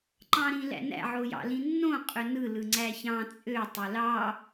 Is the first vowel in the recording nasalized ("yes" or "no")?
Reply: yes